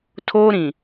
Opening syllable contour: high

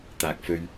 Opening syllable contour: low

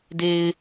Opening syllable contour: low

